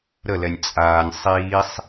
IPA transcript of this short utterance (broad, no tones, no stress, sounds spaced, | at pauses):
ɾ ə l ɛ nʲ t͡sʼ aː nʲ sˤ iː sˤ